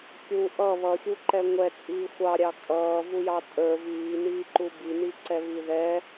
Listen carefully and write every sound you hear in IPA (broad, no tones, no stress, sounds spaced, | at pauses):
kʲ u ʔ ʌ β ʌ xʲ u ǃ ɛ ŋʷ ɛ t͡sʼ iː xʷ ɑ ɾʲ ɑ kʼ ʌː v u j ɑ tʼ ə˞ v iː n iː ǃ u b i n i ǀ ɛ β i ð ɛ